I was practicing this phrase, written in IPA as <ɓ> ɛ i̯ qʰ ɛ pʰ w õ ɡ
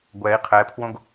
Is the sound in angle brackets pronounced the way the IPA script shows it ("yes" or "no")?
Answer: no